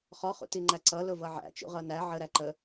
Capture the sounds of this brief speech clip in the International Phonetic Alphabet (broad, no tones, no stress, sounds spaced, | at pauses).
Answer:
χ ɔ χ ṵ t i ŋ͡ǃ æ ǀ ʌ l ʊ v ʌ ʕ æ̰ t͡ʃ ṵ ʁ ʌ n æ ʕ ə ɾ æ ǃ ə